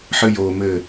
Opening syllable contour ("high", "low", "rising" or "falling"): high